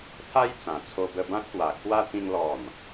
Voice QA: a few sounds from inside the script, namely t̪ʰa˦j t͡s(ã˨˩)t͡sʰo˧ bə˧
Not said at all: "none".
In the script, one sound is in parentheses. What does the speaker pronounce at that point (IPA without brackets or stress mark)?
ã˨˩